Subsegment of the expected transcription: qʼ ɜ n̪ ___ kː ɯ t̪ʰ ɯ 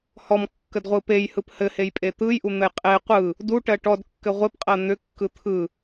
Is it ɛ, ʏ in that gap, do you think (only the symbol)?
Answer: ʏ